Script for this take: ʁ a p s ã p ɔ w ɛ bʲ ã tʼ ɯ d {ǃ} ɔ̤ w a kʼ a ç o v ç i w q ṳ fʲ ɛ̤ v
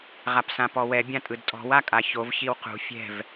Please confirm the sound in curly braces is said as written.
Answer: no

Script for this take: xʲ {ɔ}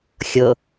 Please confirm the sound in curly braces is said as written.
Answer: no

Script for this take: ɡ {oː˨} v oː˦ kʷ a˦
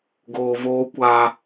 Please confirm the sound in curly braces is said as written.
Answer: yes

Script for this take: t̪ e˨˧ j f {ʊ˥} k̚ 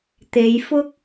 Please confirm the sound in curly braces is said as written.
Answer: yes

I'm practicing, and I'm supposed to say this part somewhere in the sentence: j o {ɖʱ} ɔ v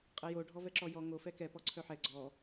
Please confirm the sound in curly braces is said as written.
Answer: yes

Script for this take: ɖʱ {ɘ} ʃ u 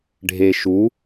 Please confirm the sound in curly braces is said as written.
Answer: no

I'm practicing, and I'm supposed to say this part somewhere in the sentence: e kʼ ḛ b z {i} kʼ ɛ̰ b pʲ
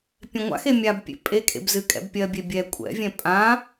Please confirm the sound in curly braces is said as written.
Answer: no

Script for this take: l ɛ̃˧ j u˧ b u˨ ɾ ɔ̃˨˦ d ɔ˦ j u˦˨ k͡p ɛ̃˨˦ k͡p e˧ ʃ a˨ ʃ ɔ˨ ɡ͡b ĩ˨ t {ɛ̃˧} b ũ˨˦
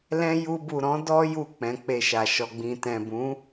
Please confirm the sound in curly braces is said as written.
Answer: no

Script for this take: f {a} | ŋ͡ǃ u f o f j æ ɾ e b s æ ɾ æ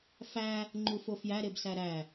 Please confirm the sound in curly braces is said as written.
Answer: no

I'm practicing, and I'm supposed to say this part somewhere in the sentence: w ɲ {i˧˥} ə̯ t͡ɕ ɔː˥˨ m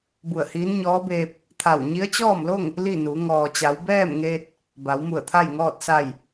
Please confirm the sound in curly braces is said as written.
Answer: yes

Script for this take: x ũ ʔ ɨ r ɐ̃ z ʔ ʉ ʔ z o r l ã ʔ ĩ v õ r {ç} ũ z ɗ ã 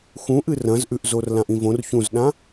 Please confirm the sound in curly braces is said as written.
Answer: yes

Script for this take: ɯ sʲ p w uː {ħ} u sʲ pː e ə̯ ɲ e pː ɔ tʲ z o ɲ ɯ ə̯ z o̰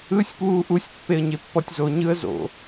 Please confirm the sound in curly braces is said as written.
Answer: no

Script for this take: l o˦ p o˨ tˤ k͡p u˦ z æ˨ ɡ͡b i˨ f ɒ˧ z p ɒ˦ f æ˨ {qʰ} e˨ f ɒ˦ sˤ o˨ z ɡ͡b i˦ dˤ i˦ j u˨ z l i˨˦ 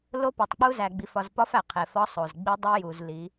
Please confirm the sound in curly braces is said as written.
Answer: yes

